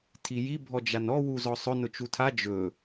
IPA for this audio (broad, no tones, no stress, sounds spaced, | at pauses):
tʰ i j i bʱ ɔ d͡ʒ a n ɔ w u z ɔ sˤ ɵ n ʊ t͡ʃ u tʰ a d͡ʒ ɵ